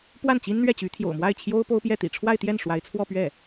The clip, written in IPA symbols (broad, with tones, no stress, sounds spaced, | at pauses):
p w a˥˩ n t͡ɕ i˥ n n̪ ɥ ɛ˥˩ t͡ɕ y˧˥ t̪ʰ j o̰˨˩ ʊ̯ m w a˥˩ ɪ̯ t͡ɕʰ j o˥ ʊ̯ p o˥ ʊ̯ p j ɛ˥˩ t̪ ḭ˨˩ ʈ͡ʂʰ w a˥˧ ɪ̯ t̪ j ɛ˥˩ n ʂ w a˧˥ ɪ̯ t͡sʰ w ɔ˥˧ p ɥ ɛ˥˩